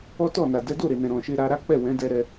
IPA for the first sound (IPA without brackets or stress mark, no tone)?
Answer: ɔ